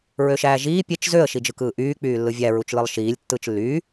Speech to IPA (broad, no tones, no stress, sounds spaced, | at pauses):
ɹ ø ʃ æː ʒ iː pʲ e t͡ʃ z ø ə̯ ʃ i d͡ʒ ɯ k ɯː ʔ yː k͡p yː lː ɯ vʲ æ ɹ u t͡ʃ l ɯ lˠ ʃ iː lʲ tː ɯː t͡ʃ lː yː